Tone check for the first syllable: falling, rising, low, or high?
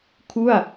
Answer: falling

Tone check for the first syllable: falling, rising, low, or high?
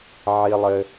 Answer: high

